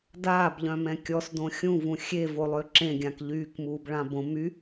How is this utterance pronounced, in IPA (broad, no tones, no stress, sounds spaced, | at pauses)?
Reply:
d aː b ʎ œ̃ m ɛ̃ kʲ ɔ s d õ xʲ ũ v ũ xʲ e v o lˠ ø ǁ ẽ ɡʲ ã k ʎ yː k m uː b ɭ ã b õ m y